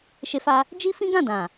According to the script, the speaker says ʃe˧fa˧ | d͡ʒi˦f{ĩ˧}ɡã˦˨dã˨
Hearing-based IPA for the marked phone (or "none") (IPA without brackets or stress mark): ĩ˦